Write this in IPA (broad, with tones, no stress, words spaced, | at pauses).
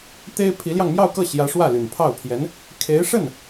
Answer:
t̪e˥ɪ̯ pʰi˧˥ljɑ˧ŋmjɑ˥˧ʊ̯kɤ˥˩ ɕjä˧˥ ʂwä˥˩ly˨˩npʰɑ˥˩ʊ̯pʰjɛ˧˥n | kʰe˧˥ɪ̯ʂə˥˩n